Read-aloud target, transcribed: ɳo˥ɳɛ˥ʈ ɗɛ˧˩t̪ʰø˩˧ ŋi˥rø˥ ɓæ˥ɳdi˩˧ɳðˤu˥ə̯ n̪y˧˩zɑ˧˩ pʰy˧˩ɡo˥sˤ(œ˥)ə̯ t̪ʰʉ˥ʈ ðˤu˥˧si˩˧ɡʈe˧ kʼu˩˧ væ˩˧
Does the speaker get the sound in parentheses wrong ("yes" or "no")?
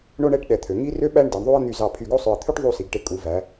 yes